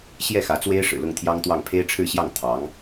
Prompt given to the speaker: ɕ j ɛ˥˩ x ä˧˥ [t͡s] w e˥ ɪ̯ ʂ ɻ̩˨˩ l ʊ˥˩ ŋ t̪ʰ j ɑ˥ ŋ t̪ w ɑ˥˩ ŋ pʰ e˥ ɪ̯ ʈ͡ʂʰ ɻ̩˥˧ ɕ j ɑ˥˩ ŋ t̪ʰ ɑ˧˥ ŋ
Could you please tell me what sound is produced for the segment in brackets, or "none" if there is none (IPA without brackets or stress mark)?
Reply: t͡s